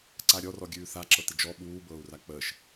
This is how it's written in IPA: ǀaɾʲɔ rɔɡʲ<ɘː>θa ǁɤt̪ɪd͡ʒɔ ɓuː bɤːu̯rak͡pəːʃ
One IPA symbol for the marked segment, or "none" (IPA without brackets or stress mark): ʉː